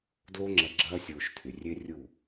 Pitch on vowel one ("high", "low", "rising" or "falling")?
high